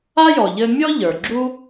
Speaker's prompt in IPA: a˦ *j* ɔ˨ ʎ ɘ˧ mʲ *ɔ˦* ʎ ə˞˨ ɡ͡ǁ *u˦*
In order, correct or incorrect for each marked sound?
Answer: correct, correct, correct

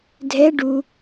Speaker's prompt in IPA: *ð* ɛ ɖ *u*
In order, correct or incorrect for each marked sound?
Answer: incorrect, correct

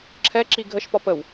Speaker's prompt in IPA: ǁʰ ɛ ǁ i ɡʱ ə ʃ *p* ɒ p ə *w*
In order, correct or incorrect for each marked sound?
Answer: correct, correct

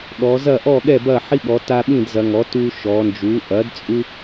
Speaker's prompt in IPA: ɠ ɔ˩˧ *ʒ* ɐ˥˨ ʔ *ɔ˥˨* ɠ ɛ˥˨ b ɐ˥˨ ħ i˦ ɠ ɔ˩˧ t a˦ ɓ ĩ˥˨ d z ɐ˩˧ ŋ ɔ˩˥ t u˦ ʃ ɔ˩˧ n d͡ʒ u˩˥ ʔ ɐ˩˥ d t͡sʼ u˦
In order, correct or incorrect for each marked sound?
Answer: incorrect, correct

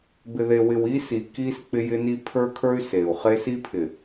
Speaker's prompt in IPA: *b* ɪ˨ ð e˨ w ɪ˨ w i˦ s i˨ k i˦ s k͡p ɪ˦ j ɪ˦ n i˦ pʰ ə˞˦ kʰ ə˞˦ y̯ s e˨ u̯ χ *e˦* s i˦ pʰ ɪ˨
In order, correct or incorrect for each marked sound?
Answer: correct, correct

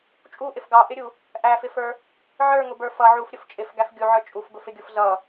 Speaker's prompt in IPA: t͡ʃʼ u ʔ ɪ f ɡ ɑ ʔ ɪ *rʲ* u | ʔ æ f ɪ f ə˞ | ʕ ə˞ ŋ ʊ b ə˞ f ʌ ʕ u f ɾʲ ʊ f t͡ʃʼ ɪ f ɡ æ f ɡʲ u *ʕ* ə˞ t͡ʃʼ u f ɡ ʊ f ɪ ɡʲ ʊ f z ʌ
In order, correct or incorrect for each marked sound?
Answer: incorrect, correct

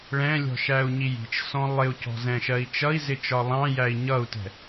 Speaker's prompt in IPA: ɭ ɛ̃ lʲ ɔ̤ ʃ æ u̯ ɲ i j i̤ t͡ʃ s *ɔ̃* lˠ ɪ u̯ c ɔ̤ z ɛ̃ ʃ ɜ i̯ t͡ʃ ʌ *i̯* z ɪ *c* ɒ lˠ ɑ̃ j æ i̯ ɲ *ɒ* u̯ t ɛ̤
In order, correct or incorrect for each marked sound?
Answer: correct, correct, incorrect, incorrect

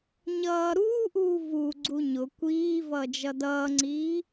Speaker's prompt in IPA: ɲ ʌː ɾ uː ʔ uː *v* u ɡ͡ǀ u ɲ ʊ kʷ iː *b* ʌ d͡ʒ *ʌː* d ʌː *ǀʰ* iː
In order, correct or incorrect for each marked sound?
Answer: correct, incorrect, incorrect, incorrect

